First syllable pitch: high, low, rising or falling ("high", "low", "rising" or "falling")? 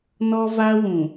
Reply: high